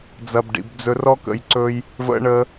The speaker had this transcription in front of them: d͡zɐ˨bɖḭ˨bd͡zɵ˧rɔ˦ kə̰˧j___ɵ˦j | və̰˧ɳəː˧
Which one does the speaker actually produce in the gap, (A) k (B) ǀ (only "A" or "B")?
B